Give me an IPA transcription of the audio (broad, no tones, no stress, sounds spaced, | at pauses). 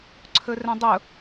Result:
ǀʰ ɵ r ɛ̃ dˤ ʊ